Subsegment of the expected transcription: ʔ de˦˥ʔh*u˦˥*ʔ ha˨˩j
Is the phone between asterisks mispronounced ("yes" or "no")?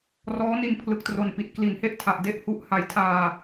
no